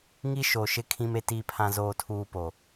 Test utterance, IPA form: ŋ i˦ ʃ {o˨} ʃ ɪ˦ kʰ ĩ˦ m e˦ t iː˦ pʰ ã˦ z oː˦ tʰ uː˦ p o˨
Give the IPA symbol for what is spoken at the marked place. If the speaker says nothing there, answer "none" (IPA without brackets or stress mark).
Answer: o˨